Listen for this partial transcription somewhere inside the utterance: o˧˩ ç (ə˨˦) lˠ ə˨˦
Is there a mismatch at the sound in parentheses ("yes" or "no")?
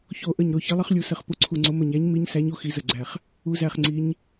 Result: no